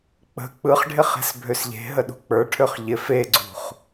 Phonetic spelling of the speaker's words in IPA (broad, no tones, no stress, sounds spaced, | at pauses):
k͡p ə̤ k͡p ɯ χ ɖʱ ɪ χ e̤ s bʱ ø s ʎ e̤ ɦ ə ɗ ṳ k͡p ə˞ ʈʰ ø χ ʎ ɪ f e ɡ͡ǀ ṳ χ